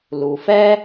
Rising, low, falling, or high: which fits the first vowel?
low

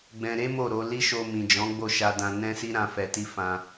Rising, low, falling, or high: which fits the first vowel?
low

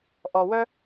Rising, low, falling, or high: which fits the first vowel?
low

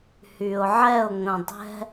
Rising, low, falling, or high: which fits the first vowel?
low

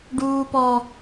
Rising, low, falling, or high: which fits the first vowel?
high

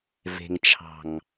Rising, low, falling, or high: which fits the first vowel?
low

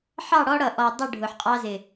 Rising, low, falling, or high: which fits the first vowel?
falling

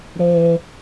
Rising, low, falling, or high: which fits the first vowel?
low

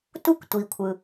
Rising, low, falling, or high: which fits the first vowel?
high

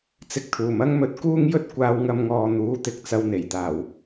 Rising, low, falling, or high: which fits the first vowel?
low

